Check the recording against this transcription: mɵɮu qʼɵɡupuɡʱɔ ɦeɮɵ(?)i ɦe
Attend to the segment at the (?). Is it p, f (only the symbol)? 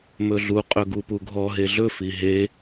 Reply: f